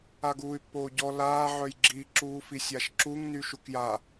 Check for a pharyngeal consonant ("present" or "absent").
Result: present